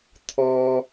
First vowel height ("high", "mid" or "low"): mid